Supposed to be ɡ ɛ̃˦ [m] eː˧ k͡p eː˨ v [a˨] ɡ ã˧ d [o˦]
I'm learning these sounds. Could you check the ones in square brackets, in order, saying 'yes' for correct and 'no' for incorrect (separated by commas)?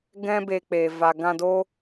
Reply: no, yes, yes